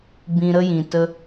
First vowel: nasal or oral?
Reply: nasal